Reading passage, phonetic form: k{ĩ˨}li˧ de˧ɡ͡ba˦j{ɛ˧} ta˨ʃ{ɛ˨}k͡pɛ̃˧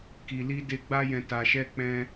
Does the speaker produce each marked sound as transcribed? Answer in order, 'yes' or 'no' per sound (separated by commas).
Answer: no, no, no